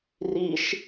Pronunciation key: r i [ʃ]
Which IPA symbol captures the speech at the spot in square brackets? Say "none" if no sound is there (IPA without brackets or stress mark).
ʃ